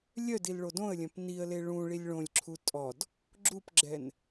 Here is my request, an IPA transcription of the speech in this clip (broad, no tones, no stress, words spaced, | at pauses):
lʲœdil ɭodõə̯lʲœ̃p niə̯le ɭũ ɭilʲɭõlʲǁʰu tʼɔd | ɡ͡ǁupɡ͡ǁɛn